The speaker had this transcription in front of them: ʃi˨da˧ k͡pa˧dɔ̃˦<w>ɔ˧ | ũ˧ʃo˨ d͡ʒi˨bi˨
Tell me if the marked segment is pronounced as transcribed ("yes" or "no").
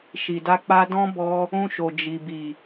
no